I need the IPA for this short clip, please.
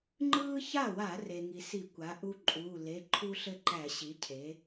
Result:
ŋ͡ǃ ɯː˦ ç a˥˩ w a˧˩˧ r e˩ ŋ i˩ s i˧˩˧ kʷ a˩˥ ʔ u˦ ǃʼ uː˩˧˩ l e˩˧˩ ǃʰ u˦ ɬ ɘ˥˩ ǃ æ˧˩˧ ɕ i˩˥ cʰ e˩˥

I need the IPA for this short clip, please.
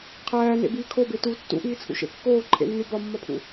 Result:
qʰ æː n ḛ b iː kʰ o b e t u tː ṵ ʔ iː t͡sʰ ṵ ʃ ḛ kː oː ǃʰ ḛ nː u b ɒ mː ɒ pʰ ṵ

